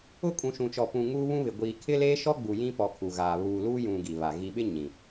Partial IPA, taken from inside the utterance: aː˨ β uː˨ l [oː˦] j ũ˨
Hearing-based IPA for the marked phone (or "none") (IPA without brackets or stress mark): uː˦